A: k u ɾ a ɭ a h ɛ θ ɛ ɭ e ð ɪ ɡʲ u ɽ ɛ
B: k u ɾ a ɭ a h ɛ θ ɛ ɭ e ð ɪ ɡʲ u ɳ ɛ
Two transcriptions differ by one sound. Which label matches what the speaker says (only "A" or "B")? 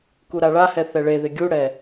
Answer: A